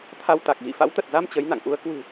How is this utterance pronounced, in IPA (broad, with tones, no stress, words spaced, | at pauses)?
t̪ʰa˧wt̪a˨˩k̚ɣḭ˧˨ fa̰˧˥wt̪ə˨˩t̚za˧m t͡ɕə˨˦jna̰˧˨ŋʔu˨˦ə̯ kwɨ̤˨˩